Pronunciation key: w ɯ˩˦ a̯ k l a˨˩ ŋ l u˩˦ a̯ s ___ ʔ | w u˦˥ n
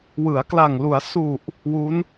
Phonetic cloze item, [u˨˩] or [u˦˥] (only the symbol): u˨˩